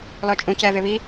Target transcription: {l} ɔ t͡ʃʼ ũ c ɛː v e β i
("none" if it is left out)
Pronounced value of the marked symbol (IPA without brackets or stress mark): l